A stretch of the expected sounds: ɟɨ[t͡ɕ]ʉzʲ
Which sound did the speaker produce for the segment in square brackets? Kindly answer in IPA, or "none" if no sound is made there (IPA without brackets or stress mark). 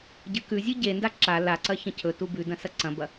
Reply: k